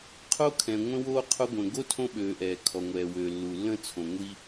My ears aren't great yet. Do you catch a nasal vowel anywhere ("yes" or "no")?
yes